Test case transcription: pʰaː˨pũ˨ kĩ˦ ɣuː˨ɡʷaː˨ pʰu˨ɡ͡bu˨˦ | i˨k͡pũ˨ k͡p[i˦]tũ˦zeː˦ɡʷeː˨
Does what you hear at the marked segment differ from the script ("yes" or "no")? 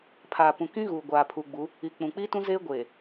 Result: no